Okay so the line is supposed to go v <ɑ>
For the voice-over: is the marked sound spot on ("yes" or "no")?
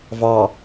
yes